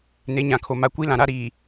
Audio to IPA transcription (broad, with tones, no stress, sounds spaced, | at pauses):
n e˨˦ ɲ ã˨ kʰ o˨ m a˨ kʷ i˦ l ã˨ ɾ a˦ ɾ iː˨